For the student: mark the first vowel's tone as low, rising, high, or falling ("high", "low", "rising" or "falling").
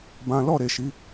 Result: high